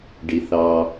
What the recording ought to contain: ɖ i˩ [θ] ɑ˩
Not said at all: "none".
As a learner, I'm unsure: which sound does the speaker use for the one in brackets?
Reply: θ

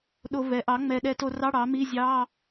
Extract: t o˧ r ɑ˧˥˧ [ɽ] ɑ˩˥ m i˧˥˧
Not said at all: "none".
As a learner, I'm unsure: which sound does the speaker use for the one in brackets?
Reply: ɽ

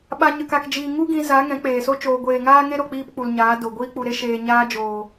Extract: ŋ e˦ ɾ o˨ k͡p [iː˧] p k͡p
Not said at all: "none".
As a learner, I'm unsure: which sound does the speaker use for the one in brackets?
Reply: iː˧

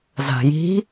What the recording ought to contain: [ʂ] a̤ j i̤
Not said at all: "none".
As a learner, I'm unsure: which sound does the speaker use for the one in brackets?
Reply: z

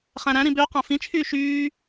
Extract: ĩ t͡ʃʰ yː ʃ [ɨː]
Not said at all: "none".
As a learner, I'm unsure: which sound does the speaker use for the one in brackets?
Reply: yː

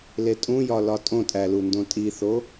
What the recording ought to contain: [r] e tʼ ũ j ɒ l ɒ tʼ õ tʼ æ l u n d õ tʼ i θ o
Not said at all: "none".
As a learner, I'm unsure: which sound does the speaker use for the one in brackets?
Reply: l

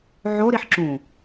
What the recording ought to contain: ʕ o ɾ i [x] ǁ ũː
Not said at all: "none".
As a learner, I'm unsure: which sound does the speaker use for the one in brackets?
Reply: ħ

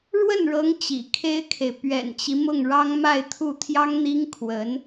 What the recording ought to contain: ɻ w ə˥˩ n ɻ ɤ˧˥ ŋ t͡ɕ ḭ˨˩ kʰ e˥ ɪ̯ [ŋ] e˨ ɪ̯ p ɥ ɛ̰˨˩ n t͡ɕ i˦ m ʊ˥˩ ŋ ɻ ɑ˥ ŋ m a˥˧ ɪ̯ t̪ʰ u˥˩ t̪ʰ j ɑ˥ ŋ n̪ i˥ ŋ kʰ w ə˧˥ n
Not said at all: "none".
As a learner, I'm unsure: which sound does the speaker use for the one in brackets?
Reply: kʰ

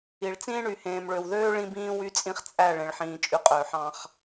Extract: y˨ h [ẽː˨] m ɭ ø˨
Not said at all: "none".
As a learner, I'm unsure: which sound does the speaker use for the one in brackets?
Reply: ẽː˨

